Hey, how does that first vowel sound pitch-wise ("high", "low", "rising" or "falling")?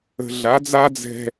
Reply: low